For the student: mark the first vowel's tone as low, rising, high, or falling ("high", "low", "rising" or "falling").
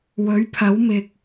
rising